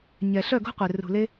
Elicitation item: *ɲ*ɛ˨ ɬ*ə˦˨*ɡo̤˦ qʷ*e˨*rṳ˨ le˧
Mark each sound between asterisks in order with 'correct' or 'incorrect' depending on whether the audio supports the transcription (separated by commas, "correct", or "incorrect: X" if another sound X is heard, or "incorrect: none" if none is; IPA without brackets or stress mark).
correct, incorrect: œ˦˨, correct